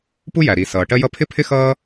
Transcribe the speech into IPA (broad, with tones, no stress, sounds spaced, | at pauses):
p u˥ j æ˩ ɾ i˩ s ʌː˩ ʈ ɜ˥ j ʌ˥ pʰ ɪ˥ pʰ ɪ˥ x ʌː˥